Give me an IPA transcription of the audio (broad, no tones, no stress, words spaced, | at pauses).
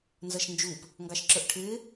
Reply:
nzʌʃnd͡ʒup | ŋɡɑʃǁə˞ʔʈʰɪː